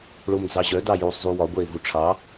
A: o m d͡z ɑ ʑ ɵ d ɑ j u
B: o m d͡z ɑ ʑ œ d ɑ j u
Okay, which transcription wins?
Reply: B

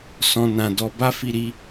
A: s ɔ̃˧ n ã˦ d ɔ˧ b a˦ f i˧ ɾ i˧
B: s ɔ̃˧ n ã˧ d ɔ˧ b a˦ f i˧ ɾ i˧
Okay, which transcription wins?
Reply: B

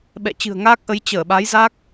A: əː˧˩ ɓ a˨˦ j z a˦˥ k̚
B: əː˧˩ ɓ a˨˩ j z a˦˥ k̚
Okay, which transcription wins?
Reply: A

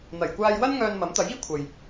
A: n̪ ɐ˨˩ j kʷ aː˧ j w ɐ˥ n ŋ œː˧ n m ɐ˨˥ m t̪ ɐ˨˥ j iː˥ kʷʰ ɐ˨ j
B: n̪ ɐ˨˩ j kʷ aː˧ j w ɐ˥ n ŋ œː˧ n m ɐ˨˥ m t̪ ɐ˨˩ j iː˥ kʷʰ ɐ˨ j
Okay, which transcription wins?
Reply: A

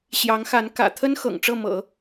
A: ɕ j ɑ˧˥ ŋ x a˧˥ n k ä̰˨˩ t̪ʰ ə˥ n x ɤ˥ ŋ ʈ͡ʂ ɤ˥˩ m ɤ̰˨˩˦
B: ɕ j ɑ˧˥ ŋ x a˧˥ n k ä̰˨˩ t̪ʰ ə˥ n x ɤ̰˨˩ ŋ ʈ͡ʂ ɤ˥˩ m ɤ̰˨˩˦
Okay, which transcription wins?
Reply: B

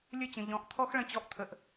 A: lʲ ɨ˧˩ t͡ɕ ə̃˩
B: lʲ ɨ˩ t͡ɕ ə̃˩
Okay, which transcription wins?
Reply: A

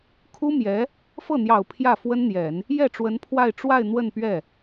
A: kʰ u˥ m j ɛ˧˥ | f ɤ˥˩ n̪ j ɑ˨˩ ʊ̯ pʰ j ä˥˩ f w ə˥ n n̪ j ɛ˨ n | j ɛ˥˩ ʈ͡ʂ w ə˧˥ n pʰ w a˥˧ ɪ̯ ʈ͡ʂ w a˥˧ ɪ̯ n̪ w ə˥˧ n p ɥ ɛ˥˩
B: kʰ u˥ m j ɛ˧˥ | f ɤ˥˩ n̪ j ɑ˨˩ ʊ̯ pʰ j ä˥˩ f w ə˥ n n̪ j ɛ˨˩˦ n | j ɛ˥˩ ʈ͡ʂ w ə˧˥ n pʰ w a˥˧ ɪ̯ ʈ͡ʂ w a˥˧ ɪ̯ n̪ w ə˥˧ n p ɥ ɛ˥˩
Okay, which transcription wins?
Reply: B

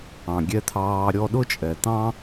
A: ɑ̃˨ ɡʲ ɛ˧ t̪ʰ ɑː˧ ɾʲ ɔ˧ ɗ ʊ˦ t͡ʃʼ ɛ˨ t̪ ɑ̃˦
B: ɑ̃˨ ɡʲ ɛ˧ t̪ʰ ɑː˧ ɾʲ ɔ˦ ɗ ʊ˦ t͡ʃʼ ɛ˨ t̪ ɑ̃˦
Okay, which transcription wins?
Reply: A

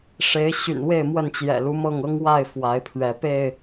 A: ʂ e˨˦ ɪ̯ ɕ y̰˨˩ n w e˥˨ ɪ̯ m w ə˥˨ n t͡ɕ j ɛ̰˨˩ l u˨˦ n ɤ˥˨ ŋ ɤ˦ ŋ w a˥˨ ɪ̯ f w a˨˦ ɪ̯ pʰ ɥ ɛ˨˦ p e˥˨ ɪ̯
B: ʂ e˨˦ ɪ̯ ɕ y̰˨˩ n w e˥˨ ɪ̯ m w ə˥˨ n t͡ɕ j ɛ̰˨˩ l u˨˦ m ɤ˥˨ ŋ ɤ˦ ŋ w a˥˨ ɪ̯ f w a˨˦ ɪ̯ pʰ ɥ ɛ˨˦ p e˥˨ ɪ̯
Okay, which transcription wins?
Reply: B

